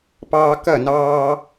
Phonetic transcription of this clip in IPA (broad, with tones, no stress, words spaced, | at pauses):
pɑː˧kɐ˦˨nɑː˧